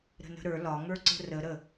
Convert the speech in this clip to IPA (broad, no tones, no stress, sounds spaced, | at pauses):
ɾ ə̤ n ə̤ ɾ ə˞ l ɒ ŋ ə˞ ǀ ə̤ r ə ɾ ə